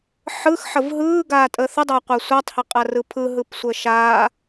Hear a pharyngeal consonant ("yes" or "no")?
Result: yes